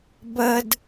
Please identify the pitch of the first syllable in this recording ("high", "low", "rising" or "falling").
high